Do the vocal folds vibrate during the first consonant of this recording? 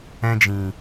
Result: yes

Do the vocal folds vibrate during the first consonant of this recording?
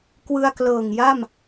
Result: no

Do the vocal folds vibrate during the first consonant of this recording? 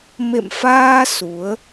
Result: yes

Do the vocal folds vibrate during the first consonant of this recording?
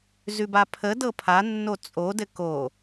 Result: yes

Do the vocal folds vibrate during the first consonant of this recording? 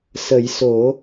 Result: no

